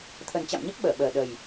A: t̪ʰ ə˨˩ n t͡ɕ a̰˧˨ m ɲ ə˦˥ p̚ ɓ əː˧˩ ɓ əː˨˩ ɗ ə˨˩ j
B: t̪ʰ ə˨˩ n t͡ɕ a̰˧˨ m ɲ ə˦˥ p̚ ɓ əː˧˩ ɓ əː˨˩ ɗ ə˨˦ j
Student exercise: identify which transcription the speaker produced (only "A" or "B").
A